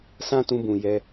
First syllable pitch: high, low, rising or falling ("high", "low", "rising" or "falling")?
high